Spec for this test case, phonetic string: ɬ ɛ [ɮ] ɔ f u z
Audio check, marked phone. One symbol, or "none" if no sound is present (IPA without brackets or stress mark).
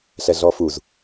ɮ